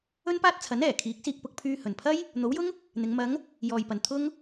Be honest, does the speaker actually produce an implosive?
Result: no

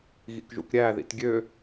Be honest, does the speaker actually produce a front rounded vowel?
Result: yes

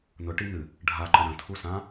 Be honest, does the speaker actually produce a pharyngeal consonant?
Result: no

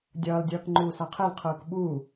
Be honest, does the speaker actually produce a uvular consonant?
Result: yes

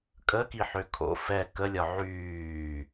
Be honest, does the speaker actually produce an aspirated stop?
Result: yes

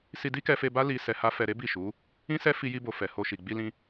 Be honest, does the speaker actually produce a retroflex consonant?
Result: no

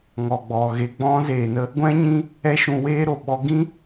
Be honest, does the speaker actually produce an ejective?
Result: no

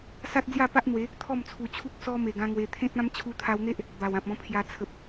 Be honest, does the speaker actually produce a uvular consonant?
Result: no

